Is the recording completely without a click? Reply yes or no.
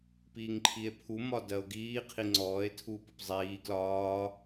no